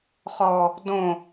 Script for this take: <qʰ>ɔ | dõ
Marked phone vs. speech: incorrect: χ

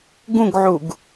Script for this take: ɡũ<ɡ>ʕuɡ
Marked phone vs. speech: correct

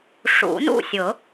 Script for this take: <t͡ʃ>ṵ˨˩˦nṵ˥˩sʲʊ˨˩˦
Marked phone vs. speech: incorrect: ʂ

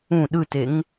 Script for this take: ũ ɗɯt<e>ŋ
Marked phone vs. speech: correct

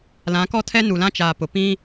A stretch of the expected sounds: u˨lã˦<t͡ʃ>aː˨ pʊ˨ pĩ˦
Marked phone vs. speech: correct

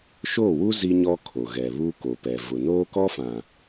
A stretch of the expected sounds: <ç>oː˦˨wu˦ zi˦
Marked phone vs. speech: incorrect: ʃ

